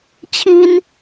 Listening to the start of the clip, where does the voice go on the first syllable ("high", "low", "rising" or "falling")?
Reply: high